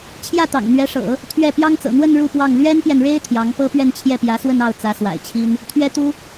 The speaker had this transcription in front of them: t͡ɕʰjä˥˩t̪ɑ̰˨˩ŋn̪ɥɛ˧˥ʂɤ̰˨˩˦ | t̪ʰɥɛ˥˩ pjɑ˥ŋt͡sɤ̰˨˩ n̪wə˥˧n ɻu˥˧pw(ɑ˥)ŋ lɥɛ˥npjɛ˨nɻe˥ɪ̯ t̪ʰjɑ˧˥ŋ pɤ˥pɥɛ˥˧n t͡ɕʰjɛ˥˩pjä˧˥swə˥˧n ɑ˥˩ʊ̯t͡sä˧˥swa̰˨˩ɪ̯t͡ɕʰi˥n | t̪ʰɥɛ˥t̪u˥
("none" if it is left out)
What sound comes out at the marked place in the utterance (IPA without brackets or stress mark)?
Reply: ɑ˥˩